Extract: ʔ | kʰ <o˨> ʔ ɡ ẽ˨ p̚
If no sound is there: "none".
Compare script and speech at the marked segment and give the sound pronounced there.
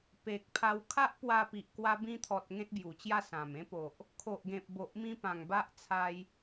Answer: o˨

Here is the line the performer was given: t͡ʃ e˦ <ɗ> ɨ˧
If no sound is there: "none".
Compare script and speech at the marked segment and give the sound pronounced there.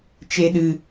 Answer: ɗ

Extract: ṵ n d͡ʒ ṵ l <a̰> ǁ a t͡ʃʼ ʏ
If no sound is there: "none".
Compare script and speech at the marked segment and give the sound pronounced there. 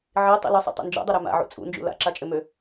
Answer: a̰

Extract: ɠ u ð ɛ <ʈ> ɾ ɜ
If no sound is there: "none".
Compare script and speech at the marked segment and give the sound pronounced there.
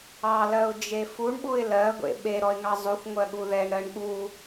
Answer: ɳ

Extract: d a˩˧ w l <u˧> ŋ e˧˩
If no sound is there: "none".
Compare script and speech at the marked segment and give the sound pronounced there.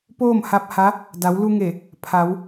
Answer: u˧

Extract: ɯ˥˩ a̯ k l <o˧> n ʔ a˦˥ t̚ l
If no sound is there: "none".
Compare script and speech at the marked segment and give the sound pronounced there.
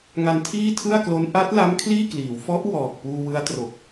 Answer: o˦˥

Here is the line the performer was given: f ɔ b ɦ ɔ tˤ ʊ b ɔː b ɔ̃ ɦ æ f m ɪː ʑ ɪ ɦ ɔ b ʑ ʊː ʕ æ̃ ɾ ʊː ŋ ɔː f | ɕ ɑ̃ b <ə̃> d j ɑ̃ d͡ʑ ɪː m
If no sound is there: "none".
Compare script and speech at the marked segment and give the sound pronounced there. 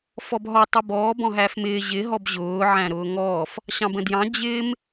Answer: ə̃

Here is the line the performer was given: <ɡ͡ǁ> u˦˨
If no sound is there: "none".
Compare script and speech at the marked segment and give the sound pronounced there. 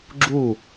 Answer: ɡ͡ǁ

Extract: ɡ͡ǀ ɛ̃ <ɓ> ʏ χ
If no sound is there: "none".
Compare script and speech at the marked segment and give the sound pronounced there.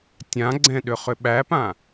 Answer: ɗ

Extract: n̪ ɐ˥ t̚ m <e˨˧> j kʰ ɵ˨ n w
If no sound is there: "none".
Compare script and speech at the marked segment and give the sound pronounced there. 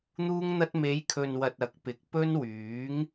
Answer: e˨˧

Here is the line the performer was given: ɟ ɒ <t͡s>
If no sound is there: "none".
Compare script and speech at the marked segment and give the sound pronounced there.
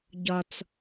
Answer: t͡s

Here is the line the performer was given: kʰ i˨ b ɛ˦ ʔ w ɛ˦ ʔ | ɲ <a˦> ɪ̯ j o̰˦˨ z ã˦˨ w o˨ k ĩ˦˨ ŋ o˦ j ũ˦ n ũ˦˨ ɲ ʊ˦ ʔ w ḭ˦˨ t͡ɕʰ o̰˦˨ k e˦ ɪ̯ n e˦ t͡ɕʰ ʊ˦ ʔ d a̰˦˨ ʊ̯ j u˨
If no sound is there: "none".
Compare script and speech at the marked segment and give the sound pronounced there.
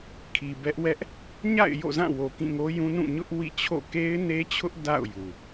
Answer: a̰˦˨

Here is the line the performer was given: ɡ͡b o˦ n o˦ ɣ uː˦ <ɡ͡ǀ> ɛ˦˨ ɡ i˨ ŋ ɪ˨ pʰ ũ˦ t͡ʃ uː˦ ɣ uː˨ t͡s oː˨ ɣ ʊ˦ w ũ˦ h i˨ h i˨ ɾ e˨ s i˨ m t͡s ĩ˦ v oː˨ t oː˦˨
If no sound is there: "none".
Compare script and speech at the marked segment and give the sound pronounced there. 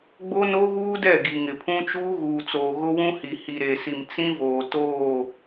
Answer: d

